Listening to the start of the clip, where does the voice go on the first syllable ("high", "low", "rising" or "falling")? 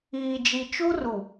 low